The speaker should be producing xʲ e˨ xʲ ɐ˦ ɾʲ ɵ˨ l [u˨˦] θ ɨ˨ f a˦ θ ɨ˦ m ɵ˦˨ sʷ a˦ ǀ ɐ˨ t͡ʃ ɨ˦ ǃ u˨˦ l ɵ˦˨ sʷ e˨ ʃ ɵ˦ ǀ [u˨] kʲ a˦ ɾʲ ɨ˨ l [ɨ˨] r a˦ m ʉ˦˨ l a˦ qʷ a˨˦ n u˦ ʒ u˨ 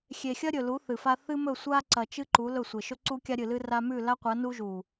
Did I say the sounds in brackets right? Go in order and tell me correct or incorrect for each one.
correct, incorrect: u˦, incorrect: ɨ˦

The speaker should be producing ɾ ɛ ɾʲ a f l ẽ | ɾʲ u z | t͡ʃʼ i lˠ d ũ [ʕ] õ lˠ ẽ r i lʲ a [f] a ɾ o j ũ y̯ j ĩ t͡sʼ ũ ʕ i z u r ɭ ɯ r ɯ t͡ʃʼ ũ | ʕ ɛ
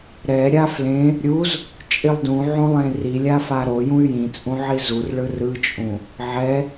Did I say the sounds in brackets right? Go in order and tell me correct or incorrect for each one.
correct, correct

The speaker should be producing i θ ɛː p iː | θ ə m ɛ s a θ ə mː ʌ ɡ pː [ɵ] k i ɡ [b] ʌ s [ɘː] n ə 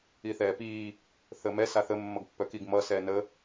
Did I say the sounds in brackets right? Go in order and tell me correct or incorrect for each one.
incorrect: œ, incorrect: m, incorrect: ɛː

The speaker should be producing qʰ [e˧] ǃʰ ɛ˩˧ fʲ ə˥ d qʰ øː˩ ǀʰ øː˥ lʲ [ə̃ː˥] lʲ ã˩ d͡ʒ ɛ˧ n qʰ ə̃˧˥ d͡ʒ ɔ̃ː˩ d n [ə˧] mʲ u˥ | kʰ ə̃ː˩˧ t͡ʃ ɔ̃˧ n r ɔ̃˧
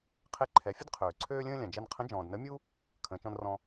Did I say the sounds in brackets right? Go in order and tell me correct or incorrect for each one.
correct, correct, incorrect: ə˧˥

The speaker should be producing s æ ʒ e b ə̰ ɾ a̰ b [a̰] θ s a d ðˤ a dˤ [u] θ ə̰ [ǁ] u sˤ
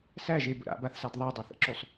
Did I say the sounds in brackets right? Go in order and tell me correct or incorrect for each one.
incorrect: a, correct, correct

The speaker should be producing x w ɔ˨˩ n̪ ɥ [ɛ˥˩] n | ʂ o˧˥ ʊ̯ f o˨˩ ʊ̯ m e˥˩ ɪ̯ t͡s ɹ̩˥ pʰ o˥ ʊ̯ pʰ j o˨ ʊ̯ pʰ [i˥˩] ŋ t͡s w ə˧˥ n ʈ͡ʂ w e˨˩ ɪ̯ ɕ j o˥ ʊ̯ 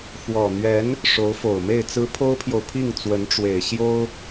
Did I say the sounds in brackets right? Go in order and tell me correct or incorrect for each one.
incorrect: ɛ˧˥, correct

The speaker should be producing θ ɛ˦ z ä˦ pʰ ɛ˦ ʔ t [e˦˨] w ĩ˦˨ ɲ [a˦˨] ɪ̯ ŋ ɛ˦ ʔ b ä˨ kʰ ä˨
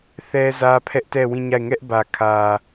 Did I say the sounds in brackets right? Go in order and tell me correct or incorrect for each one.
incorrect: ɛ˦˨, correct

